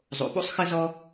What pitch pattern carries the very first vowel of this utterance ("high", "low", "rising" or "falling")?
low